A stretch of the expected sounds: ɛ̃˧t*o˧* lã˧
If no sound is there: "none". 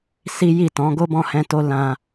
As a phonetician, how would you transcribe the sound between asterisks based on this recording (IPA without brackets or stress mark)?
o˧